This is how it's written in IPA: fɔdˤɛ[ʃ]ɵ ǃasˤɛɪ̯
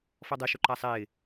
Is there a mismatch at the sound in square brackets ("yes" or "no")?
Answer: no